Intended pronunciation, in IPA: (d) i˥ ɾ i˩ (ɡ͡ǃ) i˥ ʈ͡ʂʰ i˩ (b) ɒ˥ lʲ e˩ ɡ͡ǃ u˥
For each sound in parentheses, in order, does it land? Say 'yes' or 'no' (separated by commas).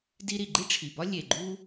yes, yes, yes